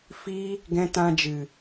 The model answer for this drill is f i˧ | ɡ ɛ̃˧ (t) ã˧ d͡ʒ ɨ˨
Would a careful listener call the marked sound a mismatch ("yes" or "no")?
no